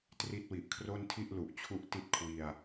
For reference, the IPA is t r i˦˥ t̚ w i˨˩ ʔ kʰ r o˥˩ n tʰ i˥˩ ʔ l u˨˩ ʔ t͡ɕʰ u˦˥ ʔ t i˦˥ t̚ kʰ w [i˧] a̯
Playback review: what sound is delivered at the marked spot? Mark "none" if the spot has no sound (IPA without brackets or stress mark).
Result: i˧